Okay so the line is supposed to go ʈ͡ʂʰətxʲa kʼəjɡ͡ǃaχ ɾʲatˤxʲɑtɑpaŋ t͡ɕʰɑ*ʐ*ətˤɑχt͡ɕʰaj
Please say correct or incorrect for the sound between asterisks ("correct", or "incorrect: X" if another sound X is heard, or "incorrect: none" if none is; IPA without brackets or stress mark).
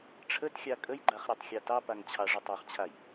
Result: correct